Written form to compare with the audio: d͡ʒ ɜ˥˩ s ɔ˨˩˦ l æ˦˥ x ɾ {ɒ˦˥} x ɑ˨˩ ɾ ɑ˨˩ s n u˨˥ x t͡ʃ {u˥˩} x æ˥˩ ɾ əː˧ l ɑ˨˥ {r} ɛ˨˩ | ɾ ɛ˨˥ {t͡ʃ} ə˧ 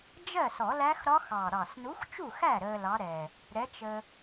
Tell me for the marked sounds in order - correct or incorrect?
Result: correct, correct, incorrect, correct

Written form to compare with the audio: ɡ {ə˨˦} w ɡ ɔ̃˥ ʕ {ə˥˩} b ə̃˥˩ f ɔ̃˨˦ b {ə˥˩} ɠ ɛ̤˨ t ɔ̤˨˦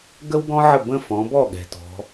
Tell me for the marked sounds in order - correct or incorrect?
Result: incorrect, correct, incorrect

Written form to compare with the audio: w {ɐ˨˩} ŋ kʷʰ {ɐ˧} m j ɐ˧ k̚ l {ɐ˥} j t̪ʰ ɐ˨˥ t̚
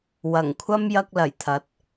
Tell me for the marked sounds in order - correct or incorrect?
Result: correct, incorrect, incorrect

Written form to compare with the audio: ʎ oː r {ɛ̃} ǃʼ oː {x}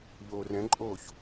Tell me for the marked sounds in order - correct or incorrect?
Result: correct, incorrect

